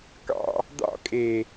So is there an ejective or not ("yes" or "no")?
yes